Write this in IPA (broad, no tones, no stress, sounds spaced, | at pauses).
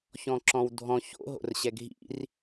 ç ɔ̃ ǁ ɔ̃ w dʱ ɔ̃ ç o̰ ɦ o̰ r ɕ ɛ ɡʱ ḭ r